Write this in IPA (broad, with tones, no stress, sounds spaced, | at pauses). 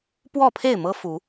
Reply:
p w ɔ˥˨ pʰ e˥˨ ɪ̯ m ɤ˦ f u˨˦